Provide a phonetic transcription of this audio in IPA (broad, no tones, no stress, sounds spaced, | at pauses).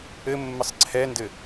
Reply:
ɘ mː ɘ sˤ ǀʰ ɛ n d ɘ